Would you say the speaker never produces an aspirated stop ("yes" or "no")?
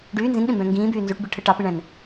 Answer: no